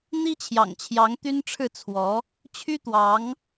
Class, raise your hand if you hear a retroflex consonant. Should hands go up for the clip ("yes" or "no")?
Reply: yes